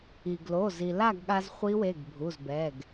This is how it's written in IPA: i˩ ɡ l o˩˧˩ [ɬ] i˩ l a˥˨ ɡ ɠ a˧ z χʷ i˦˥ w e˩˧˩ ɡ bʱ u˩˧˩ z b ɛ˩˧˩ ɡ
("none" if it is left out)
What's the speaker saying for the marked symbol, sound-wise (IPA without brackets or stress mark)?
z